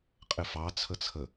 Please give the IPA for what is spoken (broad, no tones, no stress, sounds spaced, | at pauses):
qʼ ɪ f ɑ t͡sʰ ə t͡sʰ ə